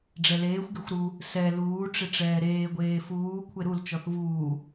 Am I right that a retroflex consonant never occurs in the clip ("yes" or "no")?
no